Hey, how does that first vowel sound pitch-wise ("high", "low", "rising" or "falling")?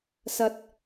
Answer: rising